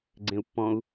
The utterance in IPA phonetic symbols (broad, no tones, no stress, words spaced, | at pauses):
ɡ͡ǀẽu̯pːɔ̃u̯